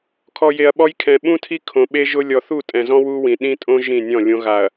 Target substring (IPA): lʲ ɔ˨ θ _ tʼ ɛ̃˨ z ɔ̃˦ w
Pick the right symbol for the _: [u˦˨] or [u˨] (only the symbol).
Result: u˦˨